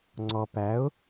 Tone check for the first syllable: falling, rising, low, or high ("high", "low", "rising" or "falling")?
low